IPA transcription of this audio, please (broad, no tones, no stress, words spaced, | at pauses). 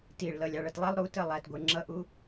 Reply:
tiɭlʌ lʲɑɭʌtlˠɛlˠ ɾutə lˠætɡʷə˞ ŋ͡ǁʌʔu